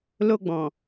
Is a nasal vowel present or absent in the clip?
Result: present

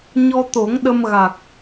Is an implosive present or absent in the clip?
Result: present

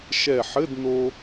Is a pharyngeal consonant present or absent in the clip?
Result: present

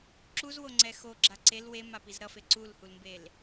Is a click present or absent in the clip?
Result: present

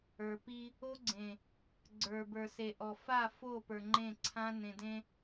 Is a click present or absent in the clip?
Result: present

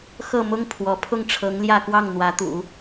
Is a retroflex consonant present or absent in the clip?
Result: present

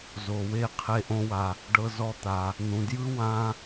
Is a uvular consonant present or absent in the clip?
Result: present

